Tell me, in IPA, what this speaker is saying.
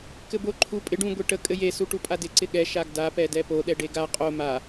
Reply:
kɘbo ǃʰu pʼɪ ɖũ ɡʷeʈə kʼɘje suʈupʼadɪ ǀɪɠɛ ʃaɡda pɛdɛpo ɗɛɖeɡa qʼo ma

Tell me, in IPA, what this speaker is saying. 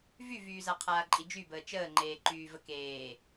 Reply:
vyvyːza qʰaːǃʼid͡ʒybəː t͡ʃəːŋ͡ǃeːǃyː vəkeː

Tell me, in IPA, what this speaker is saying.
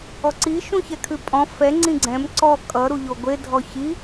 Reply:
ɔǀi ʃũçɛkʰʉpʼɔ̃ fɛ ŋ͡ǀĩɡ͡ǀɛ̃m ǀɔ kʼʌ ɾuʎoɡʷe dʱɔçi

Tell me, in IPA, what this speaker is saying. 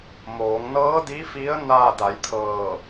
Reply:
moː˩˧ŋnɤː˧˥di˧˥fi˧˥ə̯ na˧˩ da˩˧jt̪ʰɤː˧˩

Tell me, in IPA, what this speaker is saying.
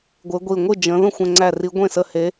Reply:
ɡʷɪ˨˦ɡʷi˧˩ ŋʷɨ˥˩ d͡ʒə̃˨˦ ðə̃˥˩xʷɛ̃˧˩ŋ͡ǀæ˧˩ri˨˦ ɡʷẽ˥˩ sə˧˩he˨˦

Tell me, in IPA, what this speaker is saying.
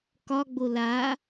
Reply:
kɒɡ͡bo la

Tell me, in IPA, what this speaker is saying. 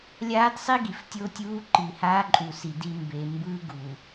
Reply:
lʲaː˦dsˤi˦ɡi˨f tʲo˦tʲuː˦ǃi˨ haː˦ǃʼu˨si˨ di˨ mbe˨mbɯː˦ ɡu˨

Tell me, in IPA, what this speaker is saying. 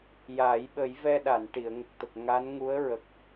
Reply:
jaː˨˩˦jɓə˨˩˦j vɛ˧ɗa˨˩˨n ʈi˨˩˨ə̯ŋə˨˩k̚t̪ə˨˩k̚ ŋa˧˥nŋu˧˥ə̯ ɹə˨˩k̚

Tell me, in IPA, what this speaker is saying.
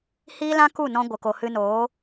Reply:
hiː˦lã˦ ku˦˨nɔ̃˧ ɡʷə˨ko˨ hɨ˧noː˨˦

